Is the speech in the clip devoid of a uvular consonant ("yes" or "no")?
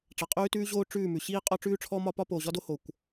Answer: no